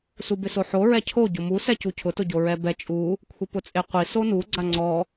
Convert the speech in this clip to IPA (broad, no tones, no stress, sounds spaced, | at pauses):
s u b ɪ s o ħ o ɹ ɛ cʰ o ɟ ʊ m u s ɛ c u cʰ ʊ t ʊ ɟ o ɹ ɛ b ɛ t͡ʃʼ u | kʷʰ ɪ p ʊ t͡sʼ e qʷ i s o n u ɡ͡ǀ a ŋ͡ǀ ɔ